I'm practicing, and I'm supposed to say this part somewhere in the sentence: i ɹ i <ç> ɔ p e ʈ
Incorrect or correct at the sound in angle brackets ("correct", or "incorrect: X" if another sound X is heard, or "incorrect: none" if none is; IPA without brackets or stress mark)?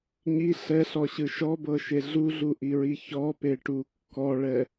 correct